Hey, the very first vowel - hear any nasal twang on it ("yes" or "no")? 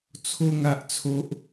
no